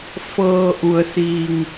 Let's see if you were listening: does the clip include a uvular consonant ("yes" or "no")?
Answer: no